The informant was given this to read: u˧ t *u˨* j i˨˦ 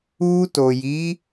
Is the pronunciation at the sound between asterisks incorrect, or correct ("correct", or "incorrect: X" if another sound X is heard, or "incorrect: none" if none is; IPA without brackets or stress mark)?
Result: incorrect: o˨